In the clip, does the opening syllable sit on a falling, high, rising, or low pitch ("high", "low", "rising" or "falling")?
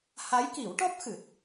rising